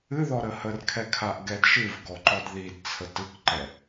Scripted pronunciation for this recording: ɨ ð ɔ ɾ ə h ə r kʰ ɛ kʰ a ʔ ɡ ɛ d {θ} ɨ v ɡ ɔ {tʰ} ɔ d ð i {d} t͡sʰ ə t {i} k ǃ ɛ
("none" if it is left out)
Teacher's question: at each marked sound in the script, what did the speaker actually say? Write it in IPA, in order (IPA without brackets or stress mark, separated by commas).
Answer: ʃ, ǃ, d, ɨ